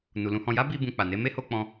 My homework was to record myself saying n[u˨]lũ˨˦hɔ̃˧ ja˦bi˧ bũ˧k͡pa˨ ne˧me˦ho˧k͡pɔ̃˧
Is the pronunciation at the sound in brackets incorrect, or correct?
correct